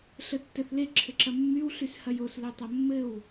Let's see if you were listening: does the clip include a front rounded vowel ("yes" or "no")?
yes